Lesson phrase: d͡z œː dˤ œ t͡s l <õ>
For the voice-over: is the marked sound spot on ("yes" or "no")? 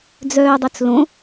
yes